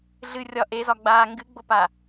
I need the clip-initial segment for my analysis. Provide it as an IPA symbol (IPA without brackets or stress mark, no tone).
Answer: ɮ